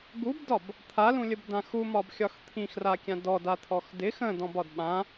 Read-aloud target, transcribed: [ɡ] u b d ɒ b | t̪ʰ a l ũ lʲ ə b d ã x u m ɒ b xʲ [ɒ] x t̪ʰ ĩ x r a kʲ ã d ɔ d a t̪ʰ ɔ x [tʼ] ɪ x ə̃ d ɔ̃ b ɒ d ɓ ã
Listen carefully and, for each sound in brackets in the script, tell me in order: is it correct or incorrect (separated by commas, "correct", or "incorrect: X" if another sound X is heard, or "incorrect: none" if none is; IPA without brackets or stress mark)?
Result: correct, correct, incorrect: d